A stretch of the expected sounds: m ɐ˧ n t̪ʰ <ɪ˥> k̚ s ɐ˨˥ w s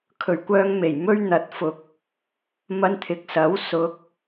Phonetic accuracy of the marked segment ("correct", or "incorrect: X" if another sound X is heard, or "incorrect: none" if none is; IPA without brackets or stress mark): incorrect: ɪ˨